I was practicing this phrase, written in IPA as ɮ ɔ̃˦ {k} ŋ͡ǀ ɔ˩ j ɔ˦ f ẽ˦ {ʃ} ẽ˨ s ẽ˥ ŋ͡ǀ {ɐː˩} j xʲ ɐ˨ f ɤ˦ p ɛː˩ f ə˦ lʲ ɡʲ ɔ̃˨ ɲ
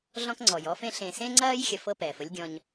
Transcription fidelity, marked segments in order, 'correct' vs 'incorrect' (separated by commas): correct, incorrect, incorrect